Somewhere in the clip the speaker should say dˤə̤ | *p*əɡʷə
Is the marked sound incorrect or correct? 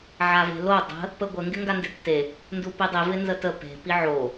correct